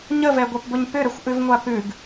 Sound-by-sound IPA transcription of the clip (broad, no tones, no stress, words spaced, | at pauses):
ɲəvɛɡʷɛpbʊɲ pʏɾəxʷʔʉvŋʷa pʉɡ